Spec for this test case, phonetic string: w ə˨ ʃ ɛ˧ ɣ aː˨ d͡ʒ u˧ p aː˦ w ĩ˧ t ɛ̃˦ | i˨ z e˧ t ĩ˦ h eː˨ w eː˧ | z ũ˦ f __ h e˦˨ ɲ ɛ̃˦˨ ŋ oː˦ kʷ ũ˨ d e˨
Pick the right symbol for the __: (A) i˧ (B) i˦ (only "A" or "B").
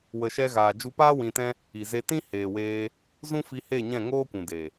A